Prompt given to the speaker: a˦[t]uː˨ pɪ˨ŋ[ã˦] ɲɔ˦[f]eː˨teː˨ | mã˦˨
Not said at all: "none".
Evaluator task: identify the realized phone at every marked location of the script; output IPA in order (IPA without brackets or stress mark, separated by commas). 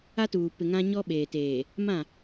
t, ã˦, ɓ